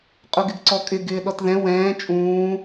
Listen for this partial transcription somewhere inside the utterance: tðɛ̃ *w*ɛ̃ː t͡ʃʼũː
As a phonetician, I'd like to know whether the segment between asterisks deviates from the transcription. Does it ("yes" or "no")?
no